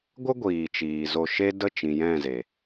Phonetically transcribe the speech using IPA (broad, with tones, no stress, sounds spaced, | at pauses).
ɡʷ ə˦ ɡʷ iː˨ t͡ʃ iː˨ z o˧ ʃ e˦ d ə˦˨ t͡ʃ ĩ˨ j ɛ̃˦˨ z e˨